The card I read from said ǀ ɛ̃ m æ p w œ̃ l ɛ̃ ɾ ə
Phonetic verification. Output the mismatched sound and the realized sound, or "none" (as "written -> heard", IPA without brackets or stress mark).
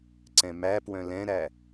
ə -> æ